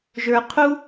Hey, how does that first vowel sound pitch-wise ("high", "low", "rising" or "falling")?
high